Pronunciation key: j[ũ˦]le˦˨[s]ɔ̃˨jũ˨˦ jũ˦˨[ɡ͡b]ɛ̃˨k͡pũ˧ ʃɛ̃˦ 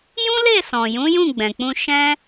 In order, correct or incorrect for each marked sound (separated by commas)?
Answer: correct, correct, correct